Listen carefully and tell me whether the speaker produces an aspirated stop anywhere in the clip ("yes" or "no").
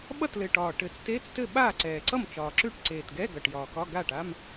no